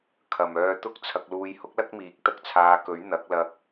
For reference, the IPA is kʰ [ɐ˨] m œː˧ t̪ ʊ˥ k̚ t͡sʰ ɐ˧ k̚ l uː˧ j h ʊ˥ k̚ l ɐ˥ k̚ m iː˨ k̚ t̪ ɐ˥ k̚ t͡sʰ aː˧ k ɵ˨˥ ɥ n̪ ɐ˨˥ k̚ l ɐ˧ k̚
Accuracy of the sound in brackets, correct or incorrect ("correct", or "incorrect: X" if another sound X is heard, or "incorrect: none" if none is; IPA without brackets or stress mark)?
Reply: correct